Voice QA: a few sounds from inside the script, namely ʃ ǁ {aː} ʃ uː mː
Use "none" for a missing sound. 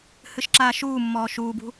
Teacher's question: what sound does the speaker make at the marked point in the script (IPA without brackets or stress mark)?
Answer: aː